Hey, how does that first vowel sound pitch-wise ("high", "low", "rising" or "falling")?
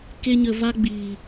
high